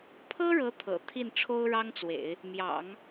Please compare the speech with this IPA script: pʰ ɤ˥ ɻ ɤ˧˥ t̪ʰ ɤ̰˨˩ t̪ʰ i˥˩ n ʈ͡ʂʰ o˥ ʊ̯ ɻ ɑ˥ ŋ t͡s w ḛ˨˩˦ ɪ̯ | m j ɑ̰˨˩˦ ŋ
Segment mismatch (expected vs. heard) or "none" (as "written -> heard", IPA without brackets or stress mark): none